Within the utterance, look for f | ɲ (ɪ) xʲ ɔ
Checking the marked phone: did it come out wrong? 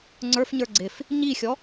yes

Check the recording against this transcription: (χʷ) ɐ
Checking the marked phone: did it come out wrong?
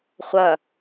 no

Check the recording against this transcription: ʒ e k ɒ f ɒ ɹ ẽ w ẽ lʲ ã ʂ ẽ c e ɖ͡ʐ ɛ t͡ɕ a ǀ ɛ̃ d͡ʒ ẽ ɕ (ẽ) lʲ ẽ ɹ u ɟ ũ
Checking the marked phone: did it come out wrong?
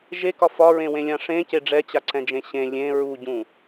no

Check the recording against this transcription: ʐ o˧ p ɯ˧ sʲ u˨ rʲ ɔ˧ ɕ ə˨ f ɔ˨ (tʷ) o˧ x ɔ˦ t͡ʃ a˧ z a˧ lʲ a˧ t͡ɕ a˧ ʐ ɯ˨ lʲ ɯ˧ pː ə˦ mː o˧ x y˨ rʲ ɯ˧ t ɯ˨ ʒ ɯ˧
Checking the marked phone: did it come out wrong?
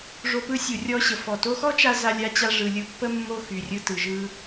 yes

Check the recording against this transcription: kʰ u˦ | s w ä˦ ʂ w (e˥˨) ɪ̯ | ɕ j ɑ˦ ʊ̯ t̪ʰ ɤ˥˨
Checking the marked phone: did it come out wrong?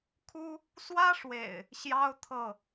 yes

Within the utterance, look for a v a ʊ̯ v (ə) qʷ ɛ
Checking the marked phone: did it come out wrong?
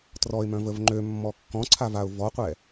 yes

